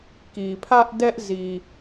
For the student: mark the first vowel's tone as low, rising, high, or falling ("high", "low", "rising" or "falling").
low